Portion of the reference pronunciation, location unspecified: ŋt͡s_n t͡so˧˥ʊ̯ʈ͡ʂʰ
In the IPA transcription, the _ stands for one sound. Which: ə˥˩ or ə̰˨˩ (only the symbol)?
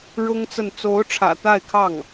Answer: ə˥˩